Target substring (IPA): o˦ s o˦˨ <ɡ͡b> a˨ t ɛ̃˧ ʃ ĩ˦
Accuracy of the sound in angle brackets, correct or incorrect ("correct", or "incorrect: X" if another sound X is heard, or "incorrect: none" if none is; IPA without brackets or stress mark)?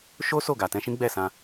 incorrect: ɡ